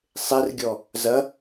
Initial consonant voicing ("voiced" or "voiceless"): voiceless